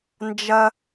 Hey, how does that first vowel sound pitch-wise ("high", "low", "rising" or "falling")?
high